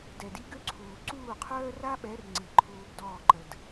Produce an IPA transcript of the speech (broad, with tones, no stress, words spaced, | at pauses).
dɛ˨di˦ɡø˦ǀʰuː˨ ǀuː˦˨qʰœː˦ra˦ɓɛ˨˦r ŋ͡ǀi˨ǃʰuː˧b dɔː˦˨ǃə˨d